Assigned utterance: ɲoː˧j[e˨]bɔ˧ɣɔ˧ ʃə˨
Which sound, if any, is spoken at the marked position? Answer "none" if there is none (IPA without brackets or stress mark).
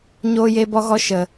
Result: e˧